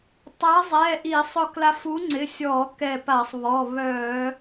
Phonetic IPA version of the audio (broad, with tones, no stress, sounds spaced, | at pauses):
tˤ a˨˥ zˤ ɛ˩˧˩ ʔ i˧˩˧ sˤ ʊ˧ k l a˧ f u˨˥ ŋ͡ǀ ɪ˩˧˩ sʲ ɔ˧˩˧ k ɛ˧˩ p a˧˩˧ sˤ β ɔ˩˧˩ β œ˧˩˧